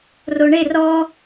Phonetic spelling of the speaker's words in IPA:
r o ɳ e r ɔ

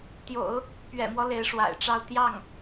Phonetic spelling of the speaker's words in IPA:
t̪ j o̰˨˩˦ ʊ̯ | p ɥ ɛ̰˨˩ m w ɔ˦ l e˧˥ ɪ̯ ʂ w a̰˨˩ ɪ̯ ʈ͡ʂ ɑ˥˧ ʊ̯ t̪ j ɑ˥˩ ŋ

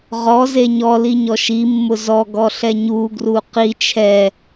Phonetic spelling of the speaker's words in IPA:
ʁ ɔ z e ɲ ɔ l i ɲ ɔ ʃ i mː ʊ z ɔ ɡ ɔ ɬ ɛ ɲ u ɡ r u q i t͡ʃʰ ɛ

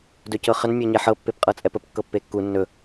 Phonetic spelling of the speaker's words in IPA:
d ɵ c ɤ χ ə n mʲ ɔ ɲ ɛ ħ ɤ pː e p qʼ ɤ t͡sʼ ɛ p ə p kː ɤ pː e kː u nː ɵ

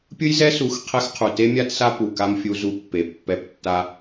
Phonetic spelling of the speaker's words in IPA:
pʲ ɯ˦ j z ɛ˦ s u˨˦ x qʰ ɛ˦ x qʰ u˨ t e˦ mʲ a˦ t s a˦ p u˨ k a˦ m fʲ u˦ z u˦ pː e˨ pː ɛ˦˨ p tː a˦

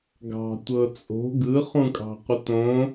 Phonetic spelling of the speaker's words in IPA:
ɡ ɑ̤ tʷ ɤ t͡sʼ o̤ ɡ ɯ χ ũ kʼ ɑ̤ qʷ ə t õ

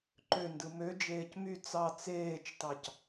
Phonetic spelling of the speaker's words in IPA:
ǃ ø n d ɯ m ø d͡ʒ eː c m y t͡s ɑ t͡s eː t͡ʃ t ɑ c

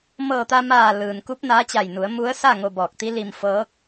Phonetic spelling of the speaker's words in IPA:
m ɤː˧˩ t̪ a˧ m aː˧˩ l ɯː˩ n k u˧˥ p̚ n aː˧˥ t͡ɕ a˧˩ j n u˩˧ ə̯ m u˧˥ ə̯ s a˥˨ ŋ o˧ b ɔː˧˩ k̚ t̪ i˧˥ l i˧ m f ɤː˧˥ k̚

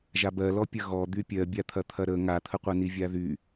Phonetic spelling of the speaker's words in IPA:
ʒ a b ɜ l ɔ pʲ ɐ ɣ ɔ d̪ y pʲ ɜ bʲ a t̪ʰ ɐ t̪ʰ ɐ ɾ ə ŋ a t̪ʰ ə qʷ a n i vʲ a ð y

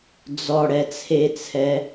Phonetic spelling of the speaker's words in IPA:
d͡z ɔ ɽ ɛ t͡sʰ e t͡sʰ ɛ

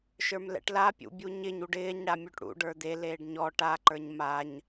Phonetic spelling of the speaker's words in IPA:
ʃ ə˞ m l ɛ̰ ʈ l a pʲ ṵ bʲ u ɲ ɪ ɲ u ɖ ɪː ɲ ɽ a mʲ u ʈ ɽ ṵ ɖ ə˞ d̪ e l eː ɖ ɲ ɔ ʈ a ǃ ə˞ ɲ m a ɲ

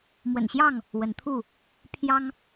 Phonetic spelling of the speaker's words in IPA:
m w ə̰˨˩ n ɕ j ɑ˥˨ ŋ | w ə˨˦ n t̪ʰ u˥˨ | pʰ j ɑ˦ ŋ

